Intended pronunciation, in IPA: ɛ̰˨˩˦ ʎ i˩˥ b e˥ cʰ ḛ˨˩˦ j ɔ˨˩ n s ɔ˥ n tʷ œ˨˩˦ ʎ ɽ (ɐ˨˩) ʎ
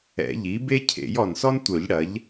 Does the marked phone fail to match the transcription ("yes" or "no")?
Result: yes